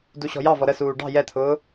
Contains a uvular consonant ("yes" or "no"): no